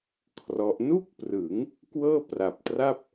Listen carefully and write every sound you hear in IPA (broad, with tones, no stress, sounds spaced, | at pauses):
kʰ r ɔ˦˥ ʔ n u˥˩ k̚ p r ɯ˩˦ ŋ | k w ɤː˥˩ p r a˨˩ p̚ t r a˥˩ p̚